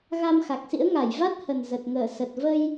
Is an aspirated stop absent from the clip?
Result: yes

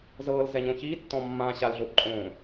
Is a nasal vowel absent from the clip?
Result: no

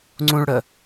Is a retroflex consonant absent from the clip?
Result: no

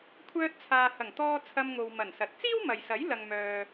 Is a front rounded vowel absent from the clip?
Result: no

